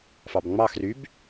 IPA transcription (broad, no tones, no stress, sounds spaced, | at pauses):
f ɑ b ŋ͡m ɑ x r y b